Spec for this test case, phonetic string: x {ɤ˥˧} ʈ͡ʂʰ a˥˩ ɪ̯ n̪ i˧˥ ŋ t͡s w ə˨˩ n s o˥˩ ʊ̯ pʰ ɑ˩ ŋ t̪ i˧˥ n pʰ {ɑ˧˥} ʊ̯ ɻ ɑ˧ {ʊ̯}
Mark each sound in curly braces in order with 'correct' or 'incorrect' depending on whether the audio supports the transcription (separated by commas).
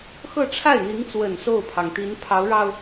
correct, correct, correct